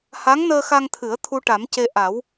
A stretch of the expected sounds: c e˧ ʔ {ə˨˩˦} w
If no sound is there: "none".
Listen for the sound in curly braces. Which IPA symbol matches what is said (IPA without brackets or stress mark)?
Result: a˨˩˦